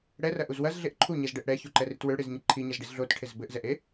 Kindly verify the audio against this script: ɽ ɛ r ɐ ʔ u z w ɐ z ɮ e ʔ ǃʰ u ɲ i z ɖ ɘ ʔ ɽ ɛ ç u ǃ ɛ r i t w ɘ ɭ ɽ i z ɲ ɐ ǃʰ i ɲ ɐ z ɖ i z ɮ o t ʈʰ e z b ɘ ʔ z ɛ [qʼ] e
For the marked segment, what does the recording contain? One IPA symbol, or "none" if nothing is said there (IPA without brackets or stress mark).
ʔ